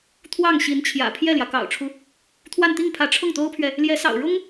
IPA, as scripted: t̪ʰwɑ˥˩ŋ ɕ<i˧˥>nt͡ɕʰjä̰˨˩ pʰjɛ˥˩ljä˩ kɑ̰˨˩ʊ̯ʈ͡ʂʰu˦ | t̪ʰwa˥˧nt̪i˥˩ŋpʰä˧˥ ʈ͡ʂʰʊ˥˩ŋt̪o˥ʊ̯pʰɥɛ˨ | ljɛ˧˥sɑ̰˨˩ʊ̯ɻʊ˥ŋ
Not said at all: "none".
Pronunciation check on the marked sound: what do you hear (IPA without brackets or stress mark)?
i˧˥